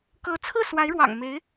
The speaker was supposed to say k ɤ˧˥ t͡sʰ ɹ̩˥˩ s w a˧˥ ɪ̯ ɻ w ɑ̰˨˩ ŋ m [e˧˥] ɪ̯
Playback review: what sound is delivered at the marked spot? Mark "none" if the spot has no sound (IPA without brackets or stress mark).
e˧˥